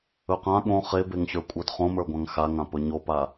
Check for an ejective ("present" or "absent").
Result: present